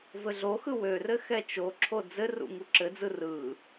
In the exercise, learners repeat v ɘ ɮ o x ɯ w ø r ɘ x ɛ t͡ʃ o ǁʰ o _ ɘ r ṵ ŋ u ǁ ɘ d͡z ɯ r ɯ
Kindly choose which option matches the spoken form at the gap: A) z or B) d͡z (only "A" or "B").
B